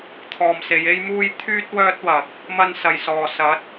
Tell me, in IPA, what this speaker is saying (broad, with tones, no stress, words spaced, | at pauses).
t̪ʰɔː˨mse˨˧je˥jmuː˥j t̪ʰyː˥t̚ wœː˥t̚wɐ˨k̚ | mɐ˧nsɐ˨˩jsɔː˨˩ sɐ˨˥t̚